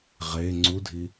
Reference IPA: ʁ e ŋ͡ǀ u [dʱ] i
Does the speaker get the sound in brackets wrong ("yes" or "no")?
no